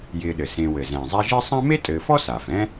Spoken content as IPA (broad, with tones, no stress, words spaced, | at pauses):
jɪː˨ɗɘ˩ sẽ˨ wɘ˩zɛ̃ː˩zˤɛ˦ʒɪː˥ sˤã˥ me˥tʼɘː˨fɔ˥ saː˩fɛ̃˦